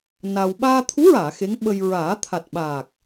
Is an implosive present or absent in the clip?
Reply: present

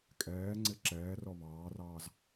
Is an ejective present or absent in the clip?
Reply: present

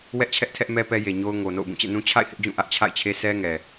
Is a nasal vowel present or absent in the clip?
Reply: present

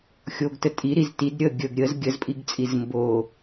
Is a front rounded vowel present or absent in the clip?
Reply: absent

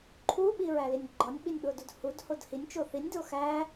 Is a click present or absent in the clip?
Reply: present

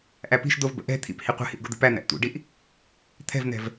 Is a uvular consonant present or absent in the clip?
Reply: present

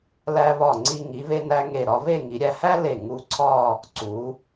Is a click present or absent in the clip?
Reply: present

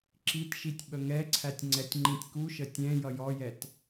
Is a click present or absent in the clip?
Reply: present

